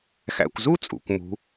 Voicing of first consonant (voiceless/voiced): voiceless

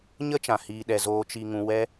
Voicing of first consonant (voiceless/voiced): voiced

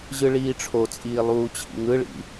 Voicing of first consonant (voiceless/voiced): voiced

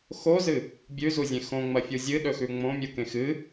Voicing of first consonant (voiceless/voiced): voiceless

